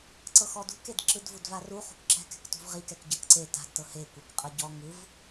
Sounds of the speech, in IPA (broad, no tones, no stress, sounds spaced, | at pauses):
ǀ ɤ x ɔ d ṳ k e d ǁ ɯ d v u d v a r u χ ṳ k ǁ ɛ̤ k ɛ̤ k t ṳ v ʁ i k ɛ k ɟ ɤ k ǀ e t a̤ d t ɤ h e kʷ e k qʼ ɤ ɟ ɔ ŋ ɯ v